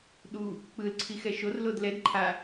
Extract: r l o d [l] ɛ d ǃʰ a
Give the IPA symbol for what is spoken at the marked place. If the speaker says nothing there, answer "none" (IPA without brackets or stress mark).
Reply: l